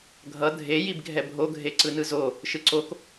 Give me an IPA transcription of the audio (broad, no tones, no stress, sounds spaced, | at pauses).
ɡʱ ʌ dʱ e j i b ɡʱ ɛ bʱ o ɡʱ e ǀ ɯ n ɯ z o | ʃ ɯ ǀ o k